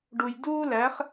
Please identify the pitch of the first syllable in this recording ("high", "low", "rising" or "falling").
low